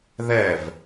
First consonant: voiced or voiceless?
voiced